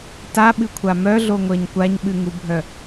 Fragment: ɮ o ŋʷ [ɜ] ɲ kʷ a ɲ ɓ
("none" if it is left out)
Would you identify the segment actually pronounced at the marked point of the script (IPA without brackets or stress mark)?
ɜ